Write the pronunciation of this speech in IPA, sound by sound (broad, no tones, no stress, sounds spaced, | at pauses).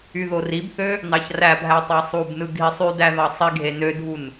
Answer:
y ð o r i b θ ø | n ɑ ç r æ bʱ æ tˤ ɑ sˤ u b n ɯ ɡʱ i sˤ y d æ ð ɑ sˤ i ɡʱ e n ø dʱ u n